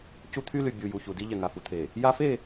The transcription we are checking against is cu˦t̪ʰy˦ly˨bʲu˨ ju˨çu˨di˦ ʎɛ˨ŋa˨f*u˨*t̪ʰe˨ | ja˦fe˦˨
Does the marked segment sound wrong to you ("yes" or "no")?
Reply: no